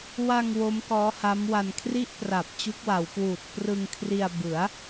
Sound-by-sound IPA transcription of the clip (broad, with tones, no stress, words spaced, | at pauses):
wa˧ŋ wo˦˥mkɔː˦˥ha˦˥mwa˧n kʰri˥˩ʔpra˨˩p̚ t͡ɕu˦˥k̚wa˩˦wkwuː˨˩t̚ prɯ˧ŋkʰri˧a̯ bɯ˩˦a̯